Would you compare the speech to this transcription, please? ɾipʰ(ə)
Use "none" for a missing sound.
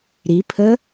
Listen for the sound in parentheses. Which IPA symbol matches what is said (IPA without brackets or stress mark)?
ə